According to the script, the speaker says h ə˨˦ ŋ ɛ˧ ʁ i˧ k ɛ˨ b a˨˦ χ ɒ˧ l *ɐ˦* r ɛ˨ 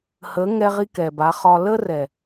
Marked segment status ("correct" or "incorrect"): incorrect